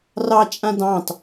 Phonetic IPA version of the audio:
r ɑ t͡ʃʼ ã d ɑ̃ t

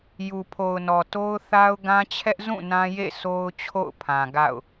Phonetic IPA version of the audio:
j u˨ pʰ o˨ ʊ̯ n ɔ˨ t o˦ ʊ̯ θ a˦ ʊ̯ ɡ ã˦ t͡ɕʰ ɛ˦ ʔ z ũ˦˨ n ã˦ j ḛ˦˨ s o˦ ʊ̯ t͡ɕʰ o̰˦˨ ʊ̯ pʰ ã˨ ɡ a̰˦˨ ʊ̯

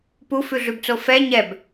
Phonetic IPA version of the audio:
p u f ʉ ɮ ʉ b t͡s o f ɛ ɲ ɛ b

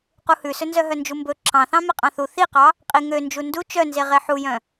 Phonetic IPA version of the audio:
q u h ʉ s ɵ n z œ ɦ œ n d͡ʒ u m b ɵ ǁ ɑ̃ θ ɑ̃ m e qʼ ɑ̃ θ u θ i q ɑ | qʼ i ŋ ø n d͡ʒ u n d u t͡ʃ œ n z e ʁ e ħ u j œ̃

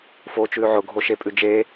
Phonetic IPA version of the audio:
f oː t͡ʃ ʉː ʕ ʊ ɡʱ o ʃ e pʼ ʉ d͡ʒ eː

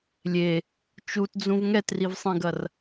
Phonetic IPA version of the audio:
lʲ e | t͡ʃ u t d͡z ũ v ŋ ɛ t r i v sˤ ĩ ɡ ɐ r

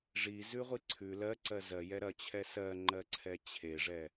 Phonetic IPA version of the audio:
ʐ i z ʉ ʁʷ i ǀʰ ʉ l ɜ ǀ ɜ z ɜ j ɛ ɾ ɐ t͡ɕʰ ɛ s ɜ ŋ͡ǃ ɜ ǀʰ ɛ t͡ɕʰ e ʐ ɛ

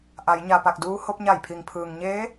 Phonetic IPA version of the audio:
ʔ a˩˧ j ɲ a˩ p a˧˩ k̚ d uː˧ h o˧ p̚ ɲ a˧˩ j pʰ i˩ ŋ pʰ ɯː˩ ŋ ɲ eː˧˥

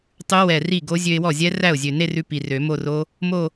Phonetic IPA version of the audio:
tˤ ʉ˦˥ w ɛ˨˩ r i˥˩ ɡ o˦˥ zʲ ø˧ ɪ̯ w ɔ˥˩ zʲ ɛ˦˥ r æ˥˩ ʊ̯ zʲ ø˨˩ n e˥˧ r ʉ˧ p i˨˩ r ø˨˩˦ m o˥˧ r o˦˥ | m o˥˧

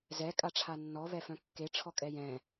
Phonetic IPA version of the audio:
z ɛ kʼ a ʈ͡ʂʰ a nː ɔ β ɛ f œ̃ kː e ʈ͡ʂʰ ɔ kʼ ɛ j ɛ̃

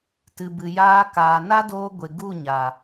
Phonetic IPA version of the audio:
t ɨ˨ b ɨ˨ j aː˧ k aː˨ n a˦ d oː˧ ɡʷ e˨ ɡ u˦˨ ɲ a˨

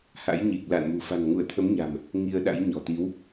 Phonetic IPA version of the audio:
h a̰˧˥ j ɲ i˨˩ k̚ l a̰ː˧˨ n m ṳ˨˩ f a̤˨˩ n ŋ u˧˩ ə̯ t̪ʰ ə˨˦ m ɲ a̤˨˩ m | ŋ i˧ ə̯ ɗ a̰˧˥ j ɲ ɔ̤˨˩ t̪ i˨˦ w

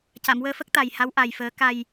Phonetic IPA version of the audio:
c a˨˩˨ m w əː˧ f ə˦˥ k̚ t̪ a˨˩ j h a˧˥ w ʔ a˨˩ j f əː˨˩˦ k a˨˩ j

